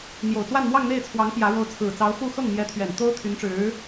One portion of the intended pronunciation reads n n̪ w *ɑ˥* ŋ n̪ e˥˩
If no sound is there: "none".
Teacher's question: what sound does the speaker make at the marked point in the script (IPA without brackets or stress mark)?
ɑ˥˧